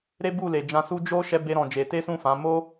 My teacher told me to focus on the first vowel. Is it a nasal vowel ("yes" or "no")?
no